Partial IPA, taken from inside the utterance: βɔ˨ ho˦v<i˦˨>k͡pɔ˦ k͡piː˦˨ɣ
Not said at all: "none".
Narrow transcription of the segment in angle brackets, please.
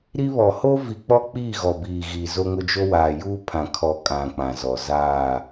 i˨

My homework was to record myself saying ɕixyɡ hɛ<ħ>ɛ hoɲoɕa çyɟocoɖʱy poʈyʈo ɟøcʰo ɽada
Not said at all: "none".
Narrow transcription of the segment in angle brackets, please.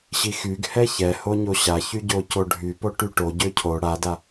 ç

